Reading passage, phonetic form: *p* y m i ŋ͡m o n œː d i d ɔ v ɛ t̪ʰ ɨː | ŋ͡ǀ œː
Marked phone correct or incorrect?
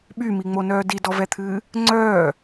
incorrect